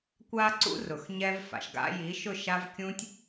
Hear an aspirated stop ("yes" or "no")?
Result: no